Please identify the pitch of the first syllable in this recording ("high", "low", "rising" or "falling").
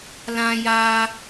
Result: high